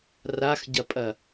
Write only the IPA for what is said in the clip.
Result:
r a x ɟ ɐ pʼ ɐ

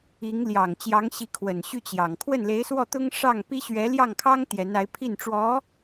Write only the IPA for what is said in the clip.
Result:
i˧˥ ŋ l j ɑ˨˩ ŋ t͡ɕ j ɑ˧˥ ŋ ɕ i˧˥ kʰ w ə˨˩ n ɕ y˥˩ t͡ɕ j ɑ˨˩ ŋ kʰ w ə˥˩ n l e˧˥ ɪ̯ s w ɔ˥˩ t̪ ʊ˥ ŋ ʂ ɑ˥˩ ŋ p i˥ ɕ ɥ ɛ˧˥ l j ɑ˥˩ ŋ kʰ ɑ˥ ŋ t̪ j ɛ˧˥ n a˧˥ ɪ̯ pʰ i˥˩ n ʈ͡ʂ w ɔ˧˥

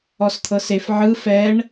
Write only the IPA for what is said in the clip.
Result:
ɔ s t̪ʰ ɤ s e f ʕ ɯ f ɛ ɳ

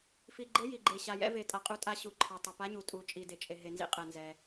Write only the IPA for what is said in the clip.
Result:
f i˩ ɡ͡ǃ ɘ˨˦ j i˩ ɡ͡ǃ e˩ ɕ a˩ j ɛ̰˨˦ v e˩ tʼ a˩ qʼ u˨˦ tʼ a˨˦ ɕ u˩ ǃʰ ɘ˩ tˤ ɘ˩ p a˨˦ ɲ u˩ tʼ u˩ t͡ʃʼ i˩ d e˩ t͡ʃʼ e˩ ɦ e˩ n z ḭ˨˦ qʼ ɛ˩ n z ɛ˩

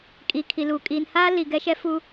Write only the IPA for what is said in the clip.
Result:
kʼ i˨ kʰ i˨ l u˨ kʼ i˨ n h aː˦ l i˨ ɡ ɛ˦ ʃ ɛ˦ f u˦

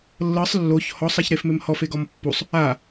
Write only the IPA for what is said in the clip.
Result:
lː ɤ sˤ lː o ç h ɔ sˤ a ç ɾ e f m e m h ɔ f e ɡ ɔ m pː u sˤ | a

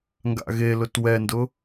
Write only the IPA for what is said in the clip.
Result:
ŋ ɡ a̰ ɣ e l ʊ t w ɛ n d ʊ

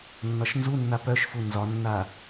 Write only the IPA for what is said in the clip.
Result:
nː ɒ ʃ n z u nː a p œ ʃ f u n z ɒ nː a

